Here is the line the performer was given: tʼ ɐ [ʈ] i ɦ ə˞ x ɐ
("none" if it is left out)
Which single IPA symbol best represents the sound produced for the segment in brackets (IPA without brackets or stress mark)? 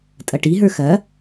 ʈ